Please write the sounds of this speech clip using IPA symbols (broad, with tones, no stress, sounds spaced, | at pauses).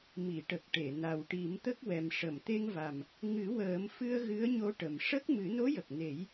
m i˨˩˨ ʈ ə˨˩ k̚ ʈ e˨˩˨ n a˨˩ w ʈ i˨˩˦ m t̪ ə˦˥ k̚ w ɛ˨˩ m ʂ ə˨˩˨ m t̪ e˧ ŋ v a˨˩ m | ŋ ɨ˨˩˦ w əː˨˩˦ m f ɨ˧ ə̯ ɣ ɨ˧˥ ə̯ ɲ o˧ ʈ ə˨˩ m ʂ ə˦˥ k̚ m ɨ˨˩˦ n o˧˥ j ə˨˩ k̚ n e˨˩˦ j